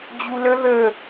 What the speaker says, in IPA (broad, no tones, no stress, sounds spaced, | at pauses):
d͡ʑ u l ə ð ə